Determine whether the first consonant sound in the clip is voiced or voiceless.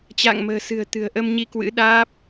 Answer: voiceless